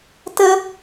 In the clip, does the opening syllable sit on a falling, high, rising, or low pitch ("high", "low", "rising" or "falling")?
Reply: high